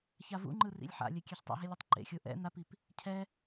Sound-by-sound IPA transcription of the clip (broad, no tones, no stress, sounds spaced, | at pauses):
ç a v ṵ ŋ͡ǃ ɯ r ḭ lʲ ħ a̰ lʲ ɛ kʲ ɛ ç tˤ ṵ ɦ e lʲ ɯ tˤ ǃ ḛ xʲ o ʔ ɛ̰ n a p i p | cʰ ɛ